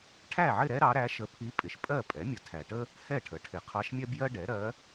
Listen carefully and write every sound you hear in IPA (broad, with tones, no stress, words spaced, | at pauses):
ʈʰæ˥˨ʕɪ˥˨ɾɛ˥ ɾɑ˧˥ɾæ˧˥ʃə˧˥ pʰi˧˥ pʼɪ˨ʃ pʼɜ˥˨pʼɛ˩˥mʲə˨ tʰæ˨ʈə˥ | hɛ˥˨ʈʰə˩˥ʈʰɪ˨ qʰɑ˧˥ʃmʲɛ˥bjɜ˥ɖɛ˩˥ ɾɜ˧˥